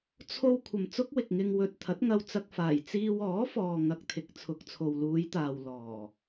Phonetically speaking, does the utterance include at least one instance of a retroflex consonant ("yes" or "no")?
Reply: no